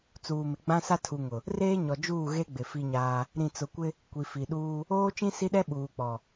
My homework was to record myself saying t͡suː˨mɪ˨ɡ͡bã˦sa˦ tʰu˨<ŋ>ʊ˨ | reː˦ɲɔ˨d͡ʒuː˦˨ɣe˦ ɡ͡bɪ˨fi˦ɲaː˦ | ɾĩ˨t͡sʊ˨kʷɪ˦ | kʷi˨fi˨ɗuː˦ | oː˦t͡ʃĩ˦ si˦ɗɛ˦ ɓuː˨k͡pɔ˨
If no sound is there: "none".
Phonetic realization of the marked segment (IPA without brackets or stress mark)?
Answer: ŋ